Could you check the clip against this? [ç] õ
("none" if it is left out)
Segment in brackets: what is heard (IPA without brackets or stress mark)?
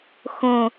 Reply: x